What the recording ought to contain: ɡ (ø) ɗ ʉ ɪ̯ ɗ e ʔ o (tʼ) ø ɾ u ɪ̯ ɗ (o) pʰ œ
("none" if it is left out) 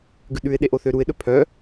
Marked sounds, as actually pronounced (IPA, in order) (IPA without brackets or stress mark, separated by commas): ʉ, θ, ɵ